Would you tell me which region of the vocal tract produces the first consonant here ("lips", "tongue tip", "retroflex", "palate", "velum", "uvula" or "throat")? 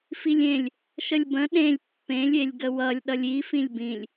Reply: lips